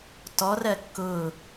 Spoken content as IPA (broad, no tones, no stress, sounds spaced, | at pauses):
t ɔ r ɜ kː ʊː